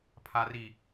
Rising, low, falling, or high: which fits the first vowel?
low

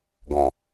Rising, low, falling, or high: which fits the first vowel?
low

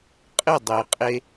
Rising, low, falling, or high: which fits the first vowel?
falling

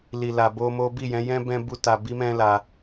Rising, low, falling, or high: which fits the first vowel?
low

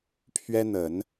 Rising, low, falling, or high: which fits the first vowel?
high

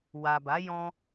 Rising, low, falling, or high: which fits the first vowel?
low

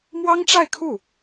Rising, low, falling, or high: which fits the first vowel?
high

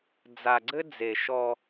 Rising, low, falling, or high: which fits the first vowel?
low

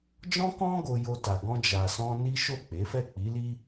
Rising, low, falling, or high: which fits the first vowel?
high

